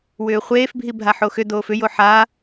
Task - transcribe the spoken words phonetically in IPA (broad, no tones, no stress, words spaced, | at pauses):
wʏːχʷeːfbʱi bʱaħoxʏ doːfʏjo ħa